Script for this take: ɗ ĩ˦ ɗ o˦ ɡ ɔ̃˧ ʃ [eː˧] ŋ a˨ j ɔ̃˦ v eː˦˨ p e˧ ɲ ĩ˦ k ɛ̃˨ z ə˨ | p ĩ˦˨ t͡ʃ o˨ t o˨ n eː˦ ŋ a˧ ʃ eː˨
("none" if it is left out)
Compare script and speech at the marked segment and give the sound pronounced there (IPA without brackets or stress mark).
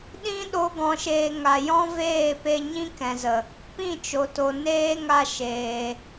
eː˧